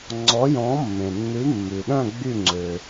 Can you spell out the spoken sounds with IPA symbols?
ŋ͡ǀ ɔ˨˥ j ɔ̃˨˥ mː ẽ˩ nː ʉ˨˥ mː ʉ˩ ɗ œ̃˥˨ ɡ͡b y˥˨ ŋ͡ǀ ø˩

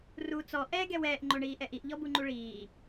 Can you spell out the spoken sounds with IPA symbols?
r u t͡s ɔ ʔ ɛ ɡ ɛ w ɛː ʔ ŋ͡ǃ o ɳ iː ʔ ɛ ʔ i ʔ ʎ ɔ b u ŋ͡ǃ u ɭ iː

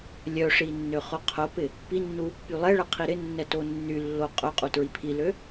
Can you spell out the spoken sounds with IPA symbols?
lʲ œ ʂ i nː ø χ ʊ qʰ ʊ p ɪ | p i nː u | p y lˠ ɛ ɭ ɛ qʰ i ɾ ɪ nː ɛ t o nː y lː o qʼ œ qʼ u t ɹ i pʰ i l ø

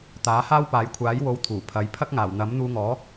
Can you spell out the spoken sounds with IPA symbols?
t̪ aː˨˥ h aː˥ w p aː˨˧ j kʷʰ aː˨˥ j w o˨˧ w t̪ʰ uː˨˩ pʰ ɐ˨˥ j pʰ ɐ˥ k̚ ŋ aː˨˩ w n̪ ɐ˨˥ m n̪ uː˧ ŋ ɔː˨˥

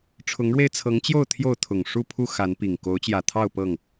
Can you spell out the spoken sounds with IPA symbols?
ʈ͡ʂʰ ʊ˨˦ ŋ ɻ w e˧ ɪ̯ t͡sʰ ɤ˨˦ ŋ t͡ɕ j o˥˨ ʊ̯ t̪ʰ j o˥˨ ʊ̯ t̪ʰ ʊ˨˩ ŋ ʂ u˥˨ pʰ u˥˨ x a˨˦ n p i˨˩ ŋ k o˨˦ ʊ̯ t͡ɕ j ä˨˩ t̪ʰ ɑ˥˨ ʊ̯ p ɤ˥˨ ŋ

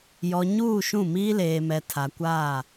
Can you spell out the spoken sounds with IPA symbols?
j ɔ˨ ɲ uː˦˨ ʃ ũ˦˨ m iː˦ l eː˨ m ɛ˨ tʰ a˨ kʷ aː˦˨

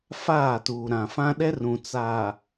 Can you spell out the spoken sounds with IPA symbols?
f aː˦˨ t uː˨ ɾ ã˨ f ã˦ ɗ ɛ˦ r ũ˨ t͡s aː˨

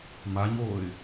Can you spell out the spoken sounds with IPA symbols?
m a ɲ oː ɪ̯

